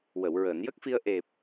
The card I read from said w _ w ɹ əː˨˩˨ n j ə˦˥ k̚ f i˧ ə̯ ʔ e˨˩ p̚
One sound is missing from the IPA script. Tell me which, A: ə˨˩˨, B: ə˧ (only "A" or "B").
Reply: A